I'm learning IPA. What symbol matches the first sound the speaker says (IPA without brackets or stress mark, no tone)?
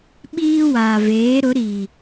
ɓ